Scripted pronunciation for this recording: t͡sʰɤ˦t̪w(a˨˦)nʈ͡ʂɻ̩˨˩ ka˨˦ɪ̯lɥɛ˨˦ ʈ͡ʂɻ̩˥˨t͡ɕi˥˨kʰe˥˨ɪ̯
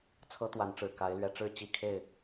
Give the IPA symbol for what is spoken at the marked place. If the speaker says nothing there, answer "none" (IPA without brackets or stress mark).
a˨˦